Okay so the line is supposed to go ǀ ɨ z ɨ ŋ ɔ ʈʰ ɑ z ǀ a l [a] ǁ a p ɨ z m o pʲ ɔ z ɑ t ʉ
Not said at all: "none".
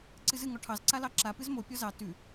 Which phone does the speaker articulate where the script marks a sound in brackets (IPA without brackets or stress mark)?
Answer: ɑ